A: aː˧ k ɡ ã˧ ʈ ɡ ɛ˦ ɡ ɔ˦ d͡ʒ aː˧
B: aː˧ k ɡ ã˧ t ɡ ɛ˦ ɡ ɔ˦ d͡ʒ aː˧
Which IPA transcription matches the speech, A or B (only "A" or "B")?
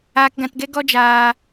B